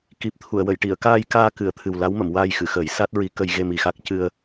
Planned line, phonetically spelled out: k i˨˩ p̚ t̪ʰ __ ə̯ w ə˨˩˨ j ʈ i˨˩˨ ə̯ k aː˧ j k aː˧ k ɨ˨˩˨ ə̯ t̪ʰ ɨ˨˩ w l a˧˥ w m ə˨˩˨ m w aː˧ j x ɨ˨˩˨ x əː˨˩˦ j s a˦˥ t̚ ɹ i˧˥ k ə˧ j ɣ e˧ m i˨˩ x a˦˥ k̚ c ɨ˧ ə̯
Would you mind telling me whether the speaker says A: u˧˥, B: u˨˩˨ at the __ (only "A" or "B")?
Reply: B